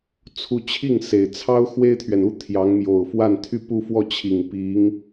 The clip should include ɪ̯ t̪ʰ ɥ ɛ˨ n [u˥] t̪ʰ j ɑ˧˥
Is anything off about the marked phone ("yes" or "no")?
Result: no